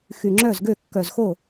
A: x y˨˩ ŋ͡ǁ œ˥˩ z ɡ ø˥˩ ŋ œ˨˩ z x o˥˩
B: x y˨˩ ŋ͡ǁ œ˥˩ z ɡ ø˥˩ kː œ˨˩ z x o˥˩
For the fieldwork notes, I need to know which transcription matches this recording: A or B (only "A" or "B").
B